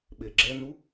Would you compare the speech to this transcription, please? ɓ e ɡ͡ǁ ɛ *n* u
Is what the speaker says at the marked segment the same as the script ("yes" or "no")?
yes